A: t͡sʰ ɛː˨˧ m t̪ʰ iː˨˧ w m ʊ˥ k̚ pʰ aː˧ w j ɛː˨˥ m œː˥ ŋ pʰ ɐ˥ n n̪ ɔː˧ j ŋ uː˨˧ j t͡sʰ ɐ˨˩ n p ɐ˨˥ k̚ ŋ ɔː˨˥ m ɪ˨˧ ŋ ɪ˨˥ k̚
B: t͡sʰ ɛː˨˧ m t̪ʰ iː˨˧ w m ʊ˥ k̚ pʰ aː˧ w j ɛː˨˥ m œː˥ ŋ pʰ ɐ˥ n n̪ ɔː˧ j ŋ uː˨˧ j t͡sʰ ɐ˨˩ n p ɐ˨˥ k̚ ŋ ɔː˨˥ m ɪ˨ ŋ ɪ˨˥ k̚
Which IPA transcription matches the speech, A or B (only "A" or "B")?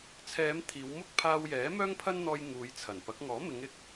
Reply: A